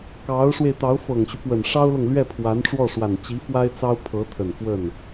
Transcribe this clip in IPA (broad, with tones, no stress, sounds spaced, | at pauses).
k ɑ˧˥ ʊ̯ ʂ w e˧ ɪ̯ t̪ ɑ˧˥ ʊ̯ f ɤ˨˩ ŋ ɕ y˦ p w ə˨˩ n ʂ ɑ˥ ʊ̯ l ɤ˨ ŋ l ɥ ɛ˥˩ pʰ w a˧˥ n ʈ͡ʂ w ɔ˥˩ ʂ w a˨˩ n t͡ɕ i˧˥ f w a˥ ɪ̯ t͡s ɑ˥ ʊ̯ pʰ ɤ˧˥ t̪ʰ ə˨˩ n f w ə˥˩ n